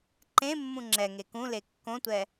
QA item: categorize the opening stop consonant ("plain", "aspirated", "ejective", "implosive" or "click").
click